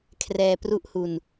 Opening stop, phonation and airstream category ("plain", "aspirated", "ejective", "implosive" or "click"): aspirated